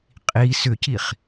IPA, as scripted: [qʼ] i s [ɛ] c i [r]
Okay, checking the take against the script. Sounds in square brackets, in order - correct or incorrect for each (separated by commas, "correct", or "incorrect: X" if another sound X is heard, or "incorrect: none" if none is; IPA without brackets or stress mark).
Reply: correct, incorrect: ʏ, incorrect: χ